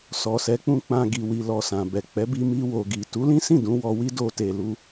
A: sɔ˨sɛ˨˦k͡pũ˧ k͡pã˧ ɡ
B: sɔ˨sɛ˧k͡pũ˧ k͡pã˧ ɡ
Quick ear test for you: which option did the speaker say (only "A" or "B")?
A